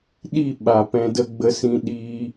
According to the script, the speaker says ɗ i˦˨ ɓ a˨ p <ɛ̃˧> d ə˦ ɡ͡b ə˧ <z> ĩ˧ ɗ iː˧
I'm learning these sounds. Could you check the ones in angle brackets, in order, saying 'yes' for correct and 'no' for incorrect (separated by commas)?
yes, no